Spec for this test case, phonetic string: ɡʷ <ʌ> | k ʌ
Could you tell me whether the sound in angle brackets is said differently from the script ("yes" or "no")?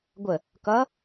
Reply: yes